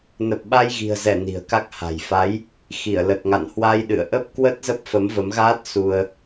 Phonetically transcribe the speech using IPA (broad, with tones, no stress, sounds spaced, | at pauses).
n ə˨˩ p̚ ɓ a˧ j ɣ i̤˨˩ ə̯ z ɛ˧˩ n i̤˨˩ ə̯ k a˦˥ k̚ h a̤˨˩ j f a˨˦ j | x i˧˩ ə̯ l ə˨˩ t̚ ŋ a̰˧˨ n h w a˧ j ɗ ɨ̰˧˨ ə̯ ʔ ə˦˥ p̚ k w ə˦˥ t̚ z ə˦˥ p̚ f ə˨˦ m v ə˨˦ m ɣ aː˦˥ t̚ s u˧ ə̯